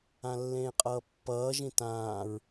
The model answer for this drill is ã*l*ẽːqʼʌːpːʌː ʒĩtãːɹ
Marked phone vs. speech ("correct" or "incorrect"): incorrect